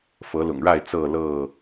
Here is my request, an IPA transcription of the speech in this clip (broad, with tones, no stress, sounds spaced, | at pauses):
f ɤ˨˦ l ʊ̰˨˩ ŋ ɻ a˥˨ ɪ̯ t͡s ɤ˥˨ l ɤ˥˨